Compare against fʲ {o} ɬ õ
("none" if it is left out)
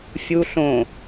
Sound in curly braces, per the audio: u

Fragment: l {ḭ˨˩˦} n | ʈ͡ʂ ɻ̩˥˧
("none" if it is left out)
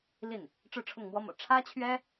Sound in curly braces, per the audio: i˥˩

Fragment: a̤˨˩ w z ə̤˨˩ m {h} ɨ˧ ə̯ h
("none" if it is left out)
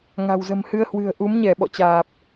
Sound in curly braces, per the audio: h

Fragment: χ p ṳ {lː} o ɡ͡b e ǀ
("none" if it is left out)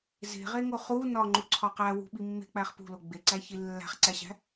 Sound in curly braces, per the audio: l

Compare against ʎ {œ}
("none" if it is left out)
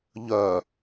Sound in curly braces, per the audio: œ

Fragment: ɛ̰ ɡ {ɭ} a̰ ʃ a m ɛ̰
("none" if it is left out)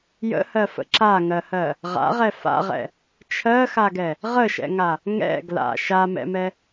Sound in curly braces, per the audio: l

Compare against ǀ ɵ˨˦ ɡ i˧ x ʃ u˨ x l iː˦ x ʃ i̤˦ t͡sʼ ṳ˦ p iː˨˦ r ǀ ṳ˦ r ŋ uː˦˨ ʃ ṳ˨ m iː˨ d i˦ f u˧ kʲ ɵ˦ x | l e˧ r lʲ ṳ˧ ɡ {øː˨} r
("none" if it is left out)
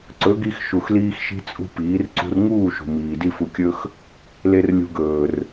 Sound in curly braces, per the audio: ɵː˨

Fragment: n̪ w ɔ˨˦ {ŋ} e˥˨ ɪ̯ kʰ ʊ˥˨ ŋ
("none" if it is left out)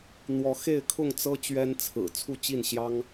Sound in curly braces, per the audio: x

